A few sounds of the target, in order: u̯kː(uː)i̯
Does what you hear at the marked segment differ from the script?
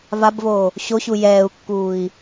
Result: no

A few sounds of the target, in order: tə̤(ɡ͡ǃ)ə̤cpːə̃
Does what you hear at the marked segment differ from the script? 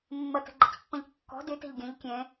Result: no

